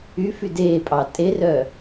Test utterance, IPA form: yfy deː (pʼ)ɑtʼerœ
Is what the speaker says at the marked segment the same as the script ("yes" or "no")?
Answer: yes